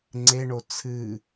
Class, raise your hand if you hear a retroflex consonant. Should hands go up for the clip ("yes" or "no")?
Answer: yes